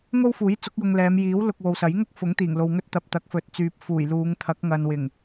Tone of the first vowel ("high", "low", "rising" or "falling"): high